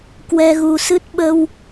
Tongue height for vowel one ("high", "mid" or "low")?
mid